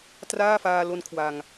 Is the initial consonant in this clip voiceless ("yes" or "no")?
yes